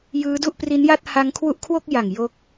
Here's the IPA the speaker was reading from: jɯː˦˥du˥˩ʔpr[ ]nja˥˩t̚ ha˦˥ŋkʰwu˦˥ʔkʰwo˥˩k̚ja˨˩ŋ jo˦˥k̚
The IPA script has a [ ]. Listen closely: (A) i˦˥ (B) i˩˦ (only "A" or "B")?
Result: A